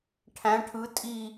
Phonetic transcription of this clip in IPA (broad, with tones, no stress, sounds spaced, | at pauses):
ʈʰ æ̃˧˥ ʈʰ ɯ˧˥ tʼ i˥˧